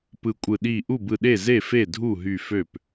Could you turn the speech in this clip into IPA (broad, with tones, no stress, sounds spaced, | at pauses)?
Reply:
p ɯ˧˩ kʷʼ ɯ˧˩ ɗ i˥˩ ʔ u˥˩ b ɯ˧˩ ɗ e˥˩ z e˥˩ f e˥˩ dʱ u˥˩ ɦ y˥˩ f ø˥˩ p